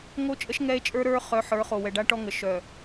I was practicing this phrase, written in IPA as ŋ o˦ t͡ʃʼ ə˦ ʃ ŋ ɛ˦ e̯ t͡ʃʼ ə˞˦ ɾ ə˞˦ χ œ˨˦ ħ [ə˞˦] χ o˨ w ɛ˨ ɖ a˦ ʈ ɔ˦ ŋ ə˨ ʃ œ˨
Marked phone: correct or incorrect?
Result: incorrect: ə˞˨˦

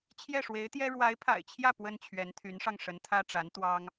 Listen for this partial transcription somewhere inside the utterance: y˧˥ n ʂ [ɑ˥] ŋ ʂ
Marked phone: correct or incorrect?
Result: incorrect: ɑ˧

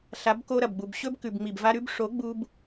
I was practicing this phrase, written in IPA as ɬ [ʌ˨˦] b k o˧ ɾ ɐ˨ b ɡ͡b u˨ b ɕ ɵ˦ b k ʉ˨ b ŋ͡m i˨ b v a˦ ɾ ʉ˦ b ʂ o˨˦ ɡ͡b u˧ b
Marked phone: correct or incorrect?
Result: incorrect: a˨˦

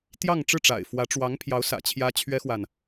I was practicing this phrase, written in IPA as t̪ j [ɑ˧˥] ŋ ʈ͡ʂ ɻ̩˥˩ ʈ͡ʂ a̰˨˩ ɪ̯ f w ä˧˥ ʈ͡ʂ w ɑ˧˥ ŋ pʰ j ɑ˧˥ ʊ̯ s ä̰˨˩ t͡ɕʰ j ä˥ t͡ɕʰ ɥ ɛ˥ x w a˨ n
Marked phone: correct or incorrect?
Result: incorrect: ɑ˥˧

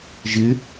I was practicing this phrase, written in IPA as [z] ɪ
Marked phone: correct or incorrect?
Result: incorrect: ʒ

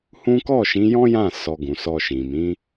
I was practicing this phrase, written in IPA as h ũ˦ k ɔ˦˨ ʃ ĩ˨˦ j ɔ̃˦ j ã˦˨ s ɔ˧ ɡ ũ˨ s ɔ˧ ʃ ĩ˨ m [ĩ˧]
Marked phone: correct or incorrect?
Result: incorrect: ĩ˨˦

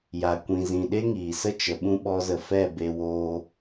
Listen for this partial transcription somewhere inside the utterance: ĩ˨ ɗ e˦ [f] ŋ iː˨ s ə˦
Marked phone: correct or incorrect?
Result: incorrect: none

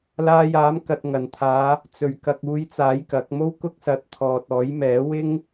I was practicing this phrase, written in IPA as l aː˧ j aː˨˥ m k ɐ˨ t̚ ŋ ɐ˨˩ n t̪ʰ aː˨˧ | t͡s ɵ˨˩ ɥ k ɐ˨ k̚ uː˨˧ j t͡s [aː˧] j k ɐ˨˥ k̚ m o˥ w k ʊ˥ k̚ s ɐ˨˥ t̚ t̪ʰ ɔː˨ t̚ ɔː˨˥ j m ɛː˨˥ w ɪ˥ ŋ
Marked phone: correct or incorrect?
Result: incorrect: aː˨˥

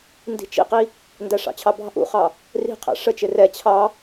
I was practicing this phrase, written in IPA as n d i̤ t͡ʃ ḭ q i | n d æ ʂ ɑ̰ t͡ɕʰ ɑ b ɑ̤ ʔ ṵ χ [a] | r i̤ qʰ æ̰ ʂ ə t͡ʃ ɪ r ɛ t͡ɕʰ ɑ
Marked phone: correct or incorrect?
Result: incorrect: ɑ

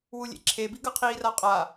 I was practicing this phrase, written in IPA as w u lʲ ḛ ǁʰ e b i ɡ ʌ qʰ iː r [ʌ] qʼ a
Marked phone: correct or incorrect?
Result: incorrect: a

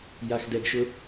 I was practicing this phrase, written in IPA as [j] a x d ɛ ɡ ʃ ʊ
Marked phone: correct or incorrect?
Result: correct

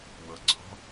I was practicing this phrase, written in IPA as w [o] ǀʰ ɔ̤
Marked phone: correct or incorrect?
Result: incorrect: ɤ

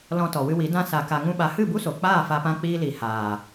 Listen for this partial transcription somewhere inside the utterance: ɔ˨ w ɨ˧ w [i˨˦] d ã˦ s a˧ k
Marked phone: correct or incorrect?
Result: correct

